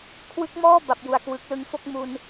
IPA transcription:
kʰ w ɯ˦˥ k̚ m ɔː˥˩ b a˨˩ p̚ j u˨˩ a̯ k w ɯ˨˩ k̚ l ɯ˧ ŋ f o˥˩ k̚ m u˧ n

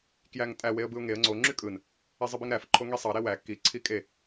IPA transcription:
k j æ ŋ tʼ æ w e ə̯ b ɯ ʊ̯ ŋ e ə̯ ŋ͡ǀ o ŋ͡ǁ y kʼ ɯ n | e zˤ ɯ b i ŋ ɾ æ f ǃʰ o ŋ i sˤ ɑ ɾ e w æ k i ǀʰ i kʼ e

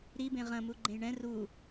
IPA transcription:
ɾ i b ẽ ʁ ɐ̃ m u ɡ͡ǃ ẽ j ɳ ɛ̃ r u

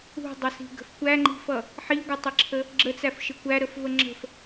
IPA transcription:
ṳ dˤ ʌ s i̤ ɡ ə̤ f kʷ æ ŋ͡ǃ i̤ f ʌ | ħ i ɡʷ ə tˤ ɪ ǁʰ ə | ɡ͡ǁ ə t͡s æ f ʃ ɪ kʷ æ ɾ ə f v ə ŋ͡ǁ ə̤ f

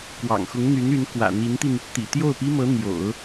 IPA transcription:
k w ɑ̰˨˩ ŋ x ʊ˧˥ ŋ n̪ y˧˥ n y˧˥ n k w ä̰˨˩ n̪ i˧˥ n t̪ i˧ n | t̪ ḭ˨˩ t̪ j o˥˩ ʊ̯ p i˥ m ɤ˧˥ n̪ j o̰˨˩˦ ʊ̯

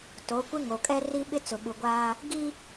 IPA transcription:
t o˨˦ kʷ ɪ˦ ŋ o˨ kʼ ɛ˦ r i˦ ɓ ɪ˦ t͡s ʊ˨ ɓ u˨ ɡʷ aː˦ | ɡ i˦

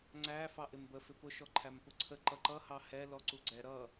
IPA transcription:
ŋ͡ǀ æ f ɑ ʔ ɪ m b ə f ɪ p ʊ ʃ ɔ ǃʰ æ m p ʊ ǀʰ ə ǃ ʌ ǃ ʌ h ɑ h ɛ l ɔ ǀ u ɡ͡ǀ ɛ ɾ ʌ

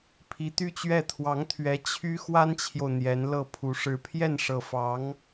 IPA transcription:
pʰ i˧˥ t̪ y˥ t͡ɕ ɥ ɛ˥˩ t̪ʰ w ɑ˧˥ ŋ t̪ʰ ɥ ɛ˧˥ t͡ɕʰ y˥ x w a˥ n t͡ɕʰ j o˨ ʊ̯ n̪ j ɛ˧˥ n l ɤ˥˩ pʰ u˧˥ ʂ ɻ̩˧˥ pʰ j ɛ˥˩ n ʂ ɤ˨˩ f ɑ˧˥ ŋ

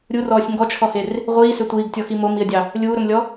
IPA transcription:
ɾʲ u r ɔː sʲ ŋ ɡ ɔ t͡ʃʰ ɔ h e r | ʁʷ iː s ø tʷ iː ɡ tʲ ɔ x i m o m i ə̯ dʲ ɑ | lʲ uː ɾ ɵ m lʲ ɔ

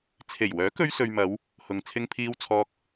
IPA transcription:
t͡sʰ e˨˩ j w œː˨˥ k ɵ˧ ɥ s ɵ˨ ɥ m ɐ˨˧ w | h ʊ˨ ŋ t͡sʰ ɪ˧ ŋ pʰ iː˧ w t͡sʰ ɔː˧ k̚

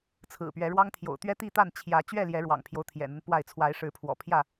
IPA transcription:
t͡sʰ ɹ̩˨˩ p ɥ ɛ˨˦ ɻ w ɑ˦ ŋ t̪ʰ j o̰˨˩ ʊ̯ t̪ ɥ ɛ˦ t̪ i˥˨ t̪ a˥˨ n t͡ɕʰ j ä˨˦ t͡ɕ ɥ ɛ˥˨ l j ɛ˨˦ ɻ w ɑ̰˨˩ ŋ pʰ j o˦ ʊ̯ t̪ʰ j ɛ̰˨˩ n̪ ə˦ n p w a˥˨ ɪ̯ t͡sʰ w a˨˦ ɪ̯ ʂ ɻ̩˨˦ pʰ w ɔ̰˨˩ pʰ j ä˥˨

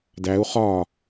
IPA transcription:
d æ u̯ χ ɒː

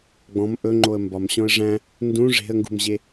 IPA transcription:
ɡ͡b ɔ̃ m ʔ ɵ ŋ͡ǃ o ə̯ m b ɒ m ɕ ɔ̃ ə̯ ʐ æ̃ | n d ũ ʐ e̤ ə̯ ŋ ɡ ṳ m ʑ e

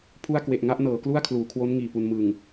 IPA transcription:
pʰ u˥˩ a̯ k w e˨˩ ʔ ŋ a˥˩ ʔ n ɤː˩˦ k l u˥˩ a̯ kʰ l uː˩˦ kʰ w o˦˥ n ŋ iː˨˩ p u˧ n m ɯː˨˩ ŋ

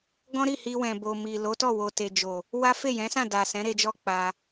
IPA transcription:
ɡ ɔ̃˦ ɾ i˦˨ h i˧ w ɛ̃˨ b o˨ m i˨ l o˨˦ t ɔ˦˨ w o˨ t e˨ d͡ʒ o˨ | w a˦ f e˦˨ j ɛ̃˨˦ s ã˦˨ d a˨ s ɛ̃˨˦ ɾ e˧ d͡ʒ ɔ˦ k͡p a˧

